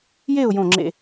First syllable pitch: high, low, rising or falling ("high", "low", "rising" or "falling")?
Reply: falling